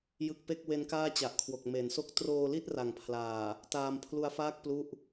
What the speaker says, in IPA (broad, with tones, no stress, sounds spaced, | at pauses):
j ɯ˦˥ k̚ p e˥˩ k̚ w e˦˥ n k aː˥˩ t͡ɕ a˨˩ ʔ kʰ w o˨˩ k̚ m e˩˦ n s o˥˩ k̚ t r oː˧ l i˥˩ t̚ r a˨˩ ŋ pʰ l aː˨˩ | t aː˧ m pʰ l u˧ a̯ f aː˥˩ k̚ p l u˥˩ ʔ